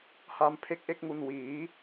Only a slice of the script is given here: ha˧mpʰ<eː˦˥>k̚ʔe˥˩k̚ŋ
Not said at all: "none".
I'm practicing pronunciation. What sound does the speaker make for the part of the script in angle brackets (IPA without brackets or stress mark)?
e˦˥